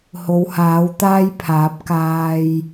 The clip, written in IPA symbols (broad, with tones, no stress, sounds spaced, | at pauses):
h o˨˧ w h aː˨˥ w t̪ aː˥ j pʰ aː˨˥ p̚ k aː˧ j